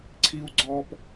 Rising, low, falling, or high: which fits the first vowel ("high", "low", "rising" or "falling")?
high